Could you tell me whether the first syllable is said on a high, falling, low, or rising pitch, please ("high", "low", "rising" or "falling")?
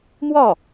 falling